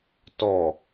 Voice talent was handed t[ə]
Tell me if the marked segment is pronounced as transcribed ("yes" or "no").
no